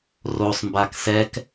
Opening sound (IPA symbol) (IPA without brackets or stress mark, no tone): r